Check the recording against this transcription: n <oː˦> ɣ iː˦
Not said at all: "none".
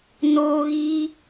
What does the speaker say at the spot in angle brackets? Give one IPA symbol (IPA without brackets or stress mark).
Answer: oː˦